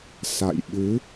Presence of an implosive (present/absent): present